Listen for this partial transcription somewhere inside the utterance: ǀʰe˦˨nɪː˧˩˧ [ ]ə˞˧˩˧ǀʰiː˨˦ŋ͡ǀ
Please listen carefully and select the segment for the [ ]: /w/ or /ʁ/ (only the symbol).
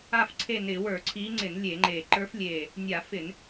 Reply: w